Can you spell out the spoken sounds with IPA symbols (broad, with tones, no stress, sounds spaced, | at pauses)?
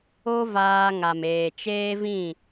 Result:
o˦ v aː˧ ŋ a˨ m eː˨ t͡ʃ eː˦ v ĩ˦˨